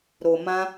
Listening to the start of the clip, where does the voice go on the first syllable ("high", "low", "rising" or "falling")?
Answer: low